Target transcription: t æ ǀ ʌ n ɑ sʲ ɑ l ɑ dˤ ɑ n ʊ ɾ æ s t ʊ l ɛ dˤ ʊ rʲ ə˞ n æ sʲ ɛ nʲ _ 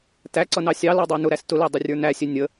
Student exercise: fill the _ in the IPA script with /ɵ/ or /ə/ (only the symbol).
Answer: ə